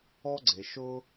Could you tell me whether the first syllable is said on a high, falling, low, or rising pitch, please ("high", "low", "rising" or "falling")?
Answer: high